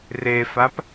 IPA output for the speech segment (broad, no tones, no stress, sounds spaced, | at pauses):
r e f a p